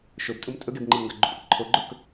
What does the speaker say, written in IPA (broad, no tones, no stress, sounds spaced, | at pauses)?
ʃ ɵ b tʼ u m tʼ ɵ ɡ e b ŋ͡ǃ ɨ m ŋ ɡ ɐ ɡ͡ǃ u pʼ e ǃʰ o ɡ͡ǃ ɵ k